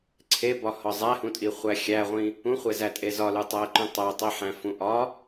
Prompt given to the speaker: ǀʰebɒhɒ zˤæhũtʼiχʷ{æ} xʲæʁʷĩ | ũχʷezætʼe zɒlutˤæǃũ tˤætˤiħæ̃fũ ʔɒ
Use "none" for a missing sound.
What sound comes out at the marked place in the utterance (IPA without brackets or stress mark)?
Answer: æ